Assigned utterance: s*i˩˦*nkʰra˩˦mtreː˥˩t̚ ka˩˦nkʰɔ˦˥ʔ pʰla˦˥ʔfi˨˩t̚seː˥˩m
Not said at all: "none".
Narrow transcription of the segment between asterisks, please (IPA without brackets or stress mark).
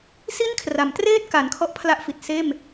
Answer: i˥˩